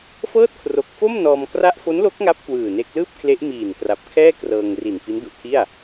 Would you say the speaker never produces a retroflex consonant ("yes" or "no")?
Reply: yes